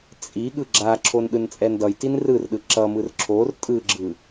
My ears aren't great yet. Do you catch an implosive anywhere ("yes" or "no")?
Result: yes